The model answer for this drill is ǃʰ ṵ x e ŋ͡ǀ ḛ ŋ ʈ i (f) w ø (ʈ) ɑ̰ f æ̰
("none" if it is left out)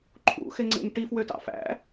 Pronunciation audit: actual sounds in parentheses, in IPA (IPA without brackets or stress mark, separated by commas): f, t